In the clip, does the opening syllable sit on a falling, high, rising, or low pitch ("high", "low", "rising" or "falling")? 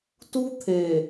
high